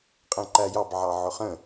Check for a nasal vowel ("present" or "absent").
present